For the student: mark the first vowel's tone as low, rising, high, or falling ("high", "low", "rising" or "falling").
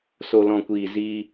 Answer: low